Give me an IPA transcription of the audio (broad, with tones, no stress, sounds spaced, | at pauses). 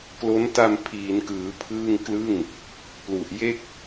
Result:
k l o˦˥ n t a˧ m pʰ iː˩˦ n k ɯː˩˦ pʰ ɯː˥˩ ŋ k l ɯ˥˩ ŋ | p l u˨˩ ʔ j e˥˩ k̚